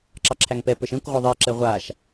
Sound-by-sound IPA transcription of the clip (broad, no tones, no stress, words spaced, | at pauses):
ǁɑǁʰæŋpɛ pə˞ʃɛ̃kʷʁʷə˞ ðˤi ǁɛʁʷaʃ